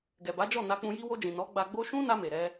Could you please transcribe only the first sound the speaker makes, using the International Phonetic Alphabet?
ɡ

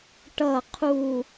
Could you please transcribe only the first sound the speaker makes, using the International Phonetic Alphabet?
ʈ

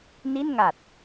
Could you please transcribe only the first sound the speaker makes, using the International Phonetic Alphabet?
n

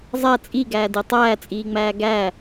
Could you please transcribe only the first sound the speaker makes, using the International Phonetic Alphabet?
zˤ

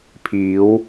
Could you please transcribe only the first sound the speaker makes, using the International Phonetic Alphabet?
pʰ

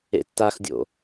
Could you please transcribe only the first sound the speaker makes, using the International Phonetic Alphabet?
ḛ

